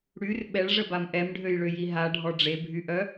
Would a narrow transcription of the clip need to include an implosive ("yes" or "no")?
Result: yes